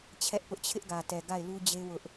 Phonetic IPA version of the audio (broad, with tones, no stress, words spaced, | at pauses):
t͡ɕʰɛ˦ʔpʊ˦ʔ t͡ɕʰɪ˦ʔɡä˨tɛ˨ ɡa˦˨ɪ̯lu˦d͡ʑe˦ wʊ˦ʔ